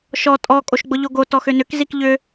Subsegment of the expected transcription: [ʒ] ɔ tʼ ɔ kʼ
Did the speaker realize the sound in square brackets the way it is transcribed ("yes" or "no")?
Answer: no